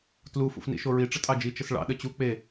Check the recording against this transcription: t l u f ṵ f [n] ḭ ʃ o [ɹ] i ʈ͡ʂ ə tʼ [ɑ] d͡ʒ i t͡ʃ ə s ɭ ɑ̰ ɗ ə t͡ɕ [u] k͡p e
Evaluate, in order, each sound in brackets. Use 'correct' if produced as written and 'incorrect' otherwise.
correct, correct, correct, correct

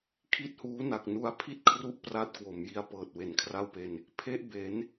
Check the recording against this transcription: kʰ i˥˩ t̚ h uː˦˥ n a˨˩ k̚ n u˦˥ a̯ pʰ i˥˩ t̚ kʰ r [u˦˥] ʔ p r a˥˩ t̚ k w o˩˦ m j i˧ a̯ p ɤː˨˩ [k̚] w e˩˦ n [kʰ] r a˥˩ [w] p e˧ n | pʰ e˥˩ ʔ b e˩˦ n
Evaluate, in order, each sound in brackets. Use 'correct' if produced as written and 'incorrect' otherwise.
correct, incorrect, correct, correct

